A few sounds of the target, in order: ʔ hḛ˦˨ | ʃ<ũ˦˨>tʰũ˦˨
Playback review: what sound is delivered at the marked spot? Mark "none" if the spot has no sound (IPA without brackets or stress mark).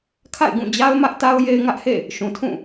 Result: ũ˨